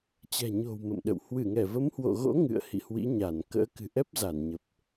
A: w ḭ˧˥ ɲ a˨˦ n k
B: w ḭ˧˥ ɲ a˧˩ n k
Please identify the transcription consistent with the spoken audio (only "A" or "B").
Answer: B